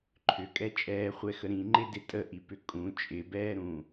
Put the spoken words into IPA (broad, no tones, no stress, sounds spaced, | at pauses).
ǃʰ ʏ kʼ ɛ t͡ʃʼ ɛː χʷ ɛ x ə ɾ ĩ ŋ͡ǃ ɪ d ɪ tʼ ə ʔ i p ʏ kʼ ũ t͡ʃʼ ɪ b ɛː ɾ ũ